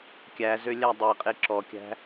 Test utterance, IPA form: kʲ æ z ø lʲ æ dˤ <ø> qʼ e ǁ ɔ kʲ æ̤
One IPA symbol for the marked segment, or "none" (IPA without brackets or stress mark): e